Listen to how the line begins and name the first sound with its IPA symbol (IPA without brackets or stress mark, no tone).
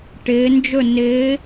ʈ